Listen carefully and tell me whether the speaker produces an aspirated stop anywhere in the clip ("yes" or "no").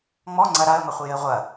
no